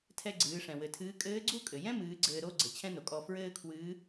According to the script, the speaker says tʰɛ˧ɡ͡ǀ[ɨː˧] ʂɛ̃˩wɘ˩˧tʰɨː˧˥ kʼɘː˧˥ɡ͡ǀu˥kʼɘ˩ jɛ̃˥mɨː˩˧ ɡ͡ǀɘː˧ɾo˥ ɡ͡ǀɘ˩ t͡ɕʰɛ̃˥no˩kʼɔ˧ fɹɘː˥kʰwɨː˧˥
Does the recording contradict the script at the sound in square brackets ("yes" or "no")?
yes